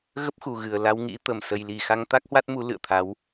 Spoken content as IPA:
ɣ ə˦˥ p̚ x u˨˩ ɣ ɨ˨˩ ə̯ l a˧ w ŋ ḭ˧˥ t̪ ə˧˩ m s ə˧ j l i˨˩ x a˧ ŋ t̪ a˦˥ k̚ h w a˦˥ t̚ m u˨˦ l ɨ̰˧˨ ə̯ t̪ʰ a˨˦ w

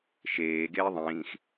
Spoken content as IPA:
ʃ eː ɡ eː ðˤ ĩː x

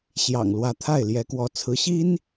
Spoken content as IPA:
ɕ j ɑ̰˨˩ ŋ l w ä˧˥ t̪ʰ a˥˩ ɪ̯ l j ɛ˧˥ k w ɔ˧˥ t͡sʰ ɹ̩˧˥ ɕ i˥ n

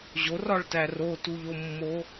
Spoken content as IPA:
ʑ o r ɒ ɭ t æ r o t u ʎ o mː o

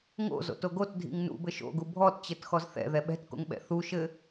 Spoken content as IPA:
ŋ o̰ z o̰ t o ɡ o t dʱ ḭ ŋ n ṵ b ɘ ʃ o̰ ɡ u bʱ ɔ t t͡ɕ ɘ t x ɔ z θ ɛ̰ ð ɛ ɓ ɛ̤ t k o̰ ŋ ɓ ɛ̰ θ u ʃ ɘ

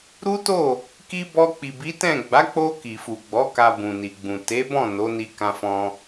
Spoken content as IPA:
ɾ u˦ t o˦˨ | k i˦ b ɔ˧ k͡p i˨ b i˨˦ t ɛ̃˦˨ ɡ͡b a˨˦ k͡p o˧ k i˨ f u˨ ɡ͡b ɔ˨˦ k a˧ b ũ˨ n i˨ ɡ͡b ũ˨ t e˨˦ b ɔ̃˦˨ n o˨˦ n i˧ k ã˧ f ɔ̃˧

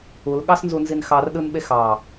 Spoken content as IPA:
u l ɠ ɑ s n z u n z i n x ɑ r ɗ ɯ n ɓ e x ɑ

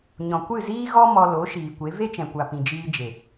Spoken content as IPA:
ɲ ɔ̃˨ kʷ ɨ˦˨ z iː˦ ɣ ɔ˦ m ɔ˧ l o˨˦ ʃ iː˨ kʷ e˨˦ v e˦ t͡ʃ ɛ̃˨ kʷ a˨ p ĩ˨ d͡ʒ iː˧ d͡ʒ e˨

